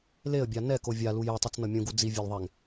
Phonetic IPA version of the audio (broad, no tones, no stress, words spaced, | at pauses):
leə̯bʲa nɛko vʲalu jɛtˤɯt͡snʌ mʲũɡu d͡zivʲelðˤɛŋ